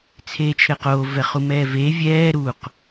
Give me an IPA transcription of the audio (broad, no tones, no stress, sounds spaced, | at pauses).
t͡sʰ eː t͡ʃʰ ɘː q oː v ɛ χ u m ɛː v eː vʲ ɛː ɾ u q